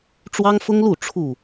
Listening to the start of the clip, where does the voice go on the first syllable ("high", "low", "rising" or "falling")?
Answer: high